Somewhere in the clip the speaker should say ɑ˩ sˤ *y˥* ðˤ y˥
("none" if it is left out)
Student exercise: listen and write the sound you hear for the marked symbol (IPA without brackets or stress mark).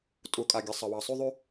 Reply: y˥